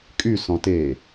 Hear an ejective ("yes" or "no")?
yes